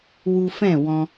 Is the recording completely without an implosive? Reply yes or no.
yes